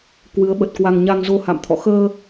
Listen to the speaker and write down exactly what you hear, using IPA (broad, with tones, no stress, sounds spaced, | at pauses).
k w ɨ˨˦ ə̯ ɓ ə˨˩ t̚ k w a˧ ŋ ɲ a˧ ŋ z o˧ h a̰˧˨ m t̪ʰ ɔ̰˧˨ x əː˧